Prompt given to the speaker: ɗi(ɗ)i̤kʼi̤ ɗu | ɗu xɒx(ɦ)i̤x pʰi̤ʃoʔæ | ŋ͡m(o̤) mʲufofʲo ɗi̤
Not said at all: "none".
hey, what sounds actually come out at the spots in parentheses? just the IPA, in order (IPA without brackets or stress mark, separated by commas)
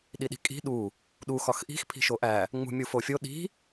ɗ, ʔ, ṳ